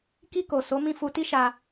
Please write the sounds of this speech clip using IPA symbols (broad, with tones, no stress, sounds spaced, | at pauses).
k i˧ k o˨ s o˨˦ m ĩ˦˨ f u˧ t i˦ ʃ a˧